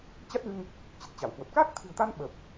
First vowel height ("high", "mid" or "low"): low